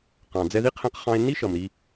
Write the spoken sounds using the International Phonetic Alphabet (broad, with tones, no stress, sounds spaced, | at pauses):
q ɑ̃˨ d͡z ɛ˧ ð i˦ qʰ ɛ̃˧ q χ ɑ̃˧ e̯ nː i˦ ʃ ʌ˨ m ɾ i˧